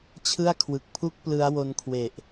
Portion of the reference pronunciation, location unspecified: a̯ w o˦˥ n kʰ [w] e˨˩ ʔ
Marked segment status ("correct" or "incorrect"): correct